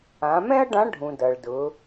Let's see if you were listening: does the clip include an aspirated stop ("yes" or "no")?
no